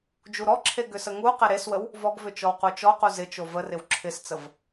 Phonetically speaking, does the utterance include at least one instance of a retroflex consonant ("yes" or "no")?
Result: no